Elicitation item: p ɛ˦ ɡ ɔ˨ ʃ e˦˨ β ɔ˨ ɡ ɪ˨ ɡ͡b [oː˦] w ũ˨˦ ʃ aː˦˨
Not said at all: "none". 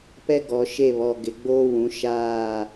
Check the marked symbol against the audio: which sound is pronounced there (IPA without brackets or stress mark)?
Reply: oː˦